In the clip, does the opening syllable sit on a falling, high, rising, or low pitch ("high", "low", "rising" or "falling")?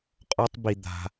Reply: high